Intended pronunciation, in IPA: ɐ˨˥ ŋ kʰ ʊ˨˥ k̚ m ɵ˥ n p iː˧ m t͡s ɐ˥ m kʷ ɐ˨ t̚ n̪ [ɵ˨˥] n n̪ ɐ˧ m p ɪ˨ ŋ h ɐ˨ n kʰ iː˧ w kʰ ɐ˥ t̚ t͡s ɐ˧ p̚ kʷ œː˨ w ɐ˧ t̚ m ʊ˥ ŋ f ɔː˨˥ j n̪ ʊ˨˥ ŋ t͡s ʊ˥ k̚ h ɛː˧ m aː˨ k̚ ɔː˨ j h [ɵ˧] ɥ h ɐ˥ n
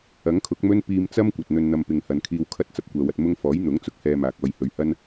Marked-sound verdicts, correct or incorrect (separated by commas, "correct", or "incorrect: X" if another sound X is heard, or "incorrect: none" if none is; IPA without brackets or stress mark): incorrect: ɵ˧, incorrect: ɵ˨˧